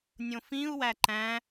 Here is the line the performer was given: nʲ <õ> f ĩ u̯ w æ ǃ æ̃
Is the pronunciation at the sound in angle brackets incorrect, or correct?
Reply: correct